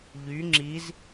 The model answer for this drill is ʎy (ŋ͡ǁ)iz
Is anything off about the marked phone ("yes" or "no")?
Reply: no